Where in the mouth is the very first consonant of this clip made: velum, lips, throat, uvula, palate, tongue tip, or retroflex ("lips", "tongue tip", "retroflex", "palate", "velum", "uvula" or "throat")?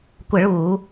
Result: velum